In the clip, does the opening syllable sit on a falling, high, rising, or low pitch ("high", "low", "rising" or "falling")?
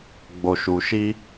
low